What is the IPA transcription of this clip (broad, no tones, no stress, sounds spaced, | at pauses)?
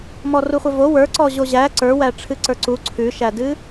m ɔ r u χʷ ɛ v o w ə˞ ǀ ɔ ʑ o ʑ æ ǀ ə˞ w æ ʈ͡ʂʰ ɨ ǀ ə˞ ǀ u ǀʰ ʉ ʃ æ d ɨ